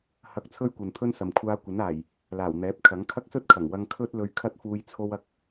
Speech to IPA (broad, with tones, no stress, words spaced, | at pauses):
hɐ˧k̚ t͡sʰɵ˥ɥkʷɐ˨nt̪ʰɵ˥nsɐ˨m kʷʰaː˧kʷɐ˨˥naː˨˩j | laː˨˩wn̪ɛː˨˥p̚kʰɐ˨˥ŋ kʰɐ˥k̚sɵ˥t̚kʰɐ˨˩ŋ wɐ˧ŋkʰɵ˥t̚lɵ˧ɥ kʰɐ˥t̚fuː˧j t͡sʰo˧wɐ˧k̚